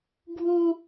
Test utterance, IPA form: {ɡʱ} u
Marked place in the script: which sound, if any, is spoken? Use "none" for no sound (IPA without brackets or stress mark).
ɡʱ